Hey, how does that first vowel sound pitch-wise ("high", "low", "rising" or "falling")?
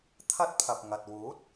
high